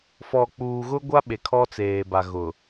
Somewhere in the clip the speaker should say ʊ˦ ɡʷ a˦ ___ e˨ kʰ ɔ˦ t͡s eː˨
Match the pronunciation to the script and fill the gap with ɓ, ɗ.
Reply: ɓ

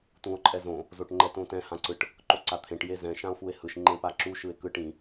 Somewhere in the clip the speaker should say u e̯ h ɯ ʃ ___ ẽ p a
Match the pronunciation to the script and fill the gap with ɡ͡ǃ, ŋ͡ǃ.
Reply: ŋ͡ǃ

